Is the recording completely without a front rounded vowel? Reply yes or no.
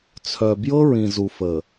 no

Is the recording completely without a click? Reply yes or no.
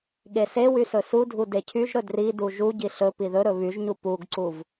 no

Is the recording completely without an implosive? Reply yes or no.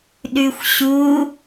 no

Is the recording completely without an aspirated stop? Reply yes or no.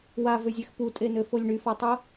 yes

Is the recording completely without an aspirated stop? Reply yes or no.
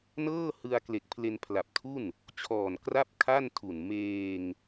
no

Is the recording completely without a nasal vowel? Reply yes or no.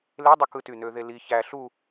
yes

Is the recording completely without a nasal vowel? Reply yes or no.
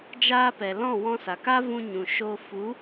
no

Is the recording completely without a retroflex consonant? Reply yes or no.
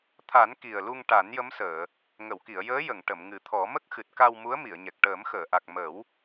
no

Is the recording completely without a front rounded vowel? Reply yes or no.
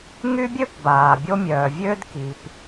no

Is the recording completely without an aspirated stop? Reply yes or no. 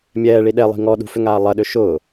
yes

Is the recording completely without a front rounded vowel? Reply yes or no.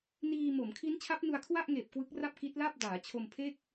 yes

